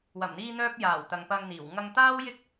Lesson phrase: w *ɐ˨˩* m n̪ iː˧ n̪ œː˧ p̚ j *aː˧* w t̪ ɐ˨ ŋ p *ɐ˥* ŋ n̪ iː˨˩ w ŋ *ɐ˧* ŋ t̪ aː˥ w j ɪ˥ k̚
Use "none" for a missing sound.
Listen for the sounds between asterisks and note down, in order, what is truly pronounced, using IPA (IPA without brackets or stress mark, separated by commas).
ɐ˨˩, aː˨˩, ɐ˧, ɐ˧